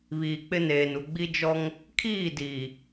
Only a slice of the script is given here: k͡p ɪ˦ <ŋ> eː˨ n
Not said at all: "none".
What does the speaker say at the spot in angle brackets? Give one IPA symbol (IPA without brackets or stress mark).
n